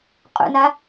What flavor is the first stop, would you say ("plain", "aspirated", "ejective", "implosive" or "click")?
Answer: ejective